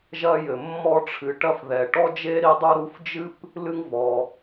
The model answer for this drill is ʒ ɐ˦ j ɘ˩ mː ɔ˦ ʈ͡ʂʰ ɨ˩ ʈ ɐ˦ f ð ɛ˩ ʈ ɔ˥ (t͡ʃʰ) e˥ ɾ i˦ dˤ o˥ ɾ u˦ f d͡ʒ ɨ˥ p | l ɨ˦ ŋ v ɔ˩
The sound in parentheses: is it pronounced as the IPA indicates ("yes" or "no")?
no